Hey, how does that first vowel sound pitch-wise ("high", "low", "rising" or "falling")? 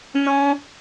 high